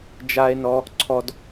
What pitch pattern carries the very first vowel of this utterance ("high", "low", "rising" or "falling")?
high